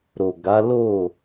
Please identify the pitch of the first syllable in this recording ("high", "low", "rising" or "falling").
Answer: low